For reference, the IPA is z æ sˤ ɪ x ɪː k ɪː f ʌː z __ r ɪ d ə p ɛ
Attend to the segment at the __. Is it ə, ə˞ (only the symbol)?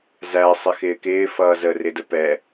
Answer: ə